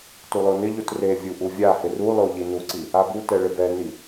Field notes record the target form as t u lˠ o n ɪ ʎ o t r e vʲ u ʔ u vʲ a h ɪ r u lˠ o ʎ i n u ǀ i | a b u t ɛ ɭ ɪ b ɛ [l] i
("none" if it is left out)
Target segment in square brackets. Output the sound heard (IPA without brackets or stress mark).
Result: n